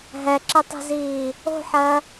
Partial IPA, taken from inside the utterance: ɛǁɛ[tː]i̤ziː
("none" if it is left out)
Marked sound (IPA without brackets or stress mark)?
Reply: tˤ